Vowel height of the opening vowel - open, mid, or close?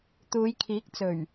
close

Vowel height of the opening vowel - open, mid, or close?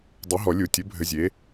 mid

